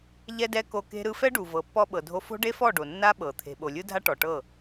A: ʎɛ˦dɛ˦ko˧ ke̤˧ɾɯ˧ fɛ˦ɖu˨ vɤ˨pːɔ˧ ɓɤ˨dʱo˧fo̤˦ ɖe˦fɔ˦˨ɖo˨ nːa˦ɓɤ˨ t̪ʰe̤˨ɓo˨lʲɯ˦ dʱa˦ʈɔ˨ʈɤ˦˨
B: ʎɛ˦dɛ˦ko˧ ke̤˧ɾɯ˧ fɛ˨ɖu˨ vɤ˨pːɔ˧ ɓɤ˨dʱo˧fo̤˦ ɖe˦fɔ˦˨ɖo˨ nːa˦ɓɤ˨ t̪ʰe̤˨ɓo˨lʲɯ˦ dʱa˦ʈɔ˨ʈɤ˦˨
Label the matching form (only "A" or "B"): A